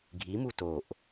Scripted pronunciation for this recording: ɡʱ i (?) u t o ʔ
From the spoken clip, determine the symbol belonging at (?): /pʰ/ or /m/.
m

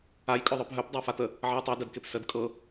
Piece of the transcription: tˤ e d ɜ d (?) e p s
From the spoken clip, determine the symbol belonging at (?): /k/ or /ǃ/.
k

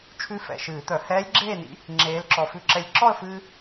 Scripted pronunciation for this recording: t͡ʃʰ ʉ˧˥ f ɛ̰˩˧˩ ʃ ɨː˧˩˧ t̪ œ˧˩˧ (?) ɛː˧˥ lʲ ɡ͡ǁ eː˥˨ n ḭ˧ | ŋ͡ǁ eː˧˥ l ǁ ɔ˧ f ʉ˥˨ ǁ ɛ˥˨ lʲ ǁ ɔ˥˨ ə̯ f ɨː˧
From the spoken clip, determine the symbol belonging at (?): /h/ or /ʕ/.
h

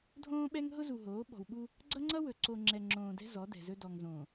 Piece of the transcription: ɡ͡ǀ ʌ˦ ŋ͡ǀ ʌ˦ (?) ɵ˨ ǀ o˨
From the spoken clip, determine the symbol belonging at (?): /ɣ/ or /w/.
w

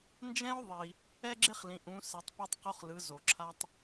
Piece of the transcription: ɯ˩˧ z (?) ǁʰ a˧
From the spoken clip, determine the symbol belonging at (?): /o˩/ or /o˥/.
o˩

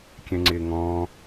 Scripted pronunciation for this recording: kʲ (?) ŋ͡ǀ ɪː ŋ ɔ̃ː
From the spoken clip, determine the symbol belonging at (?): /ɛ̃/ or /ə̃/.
ɛ̃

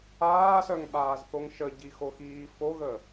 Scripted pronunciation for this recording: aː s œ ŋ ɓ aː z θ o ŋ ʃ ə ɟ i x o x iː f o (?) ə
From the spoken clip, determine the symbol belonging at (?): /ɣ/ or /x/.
ɣ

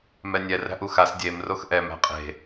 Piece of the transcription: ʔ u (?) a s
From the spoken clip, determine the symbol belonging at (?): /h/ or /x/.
x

